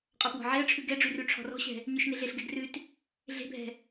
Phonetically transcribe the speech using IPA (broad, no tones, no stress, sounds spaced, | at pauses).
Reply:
qʼ ɔ p w ɔ̤ ʕ e ə̯ ʈ͡ʂʰ ʉ ɡ ɛ ɖ͡ʐ ʉ r ʉ ʈ͡ʂʰ ɔ̤ r ɔ̤ ɕ ɛ̤ | ɲ ʉ ʃ n e ɮ e ɬ ɡ ɛ ɡ r ʉ t | ɮ e̤ bʱ ɛ̤